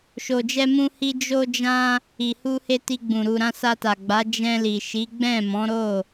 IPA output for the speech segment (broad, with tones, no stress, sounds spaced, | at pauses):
ʃ o˨ d͡ʒ ɛ˧ m ũ˧ h i˧ d͡ʒ o˧ d͡ʒ ã˧ | i˨ h u˧ h e˧ t i˧ ɡ͡b ũ˨ ɾ u˨ ɾ ã˧ s a˧ t a˨ ɡ͡b a˨˦ d͡ʒ ɛ̃˧ l i˨ ʃ i˨˦ ɡ͡b ɛ̃˦˨ m ɔ̃˨˦ ɾ o˦˨